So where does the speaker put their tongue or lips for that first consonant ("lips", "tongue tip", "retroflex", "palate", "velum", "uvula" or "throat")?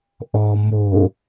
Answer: throat